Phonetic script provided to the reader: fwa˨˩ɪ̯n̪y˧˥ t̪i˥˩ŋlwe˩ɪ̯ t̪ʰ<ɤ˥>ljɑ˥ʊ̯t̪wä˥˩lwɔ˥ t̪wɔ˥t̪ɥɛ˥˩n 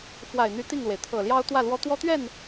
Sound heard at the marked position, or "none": ɤ˨˩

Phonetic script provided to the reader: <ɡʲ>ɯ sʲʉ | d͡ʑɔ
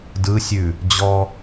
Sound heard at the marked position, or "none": d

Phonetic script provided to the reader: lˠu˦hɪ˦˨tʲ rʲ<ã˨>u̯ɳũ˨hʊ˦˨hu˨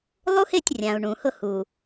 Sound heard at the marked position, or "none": ã˨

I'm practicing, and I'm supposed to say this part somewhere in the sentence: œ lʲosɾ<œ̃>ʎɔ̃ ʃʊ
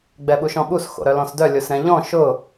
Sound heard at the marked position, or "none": ɛ̃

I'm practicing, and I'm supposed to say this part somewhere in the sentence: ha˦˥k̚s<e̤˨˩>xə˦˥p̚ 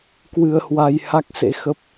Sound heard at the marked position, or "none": ḛ˧˥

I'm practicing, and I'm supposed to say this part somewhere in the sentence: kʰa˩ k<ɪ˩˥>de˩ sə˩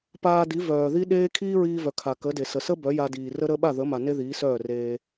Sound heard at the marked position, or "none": ə˩˥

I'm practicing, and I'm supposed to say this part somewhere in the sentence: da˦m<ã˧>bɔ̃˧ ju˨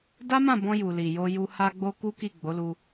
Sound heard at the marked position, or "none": ã˦˨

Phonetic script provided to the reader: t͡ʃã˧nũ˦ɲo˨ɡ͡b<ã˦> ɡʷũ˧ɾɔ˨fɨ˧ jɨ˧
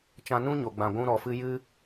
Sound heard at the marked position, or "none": ã˨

